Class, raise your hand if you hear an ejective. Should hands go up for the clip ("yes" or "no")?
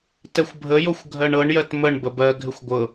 no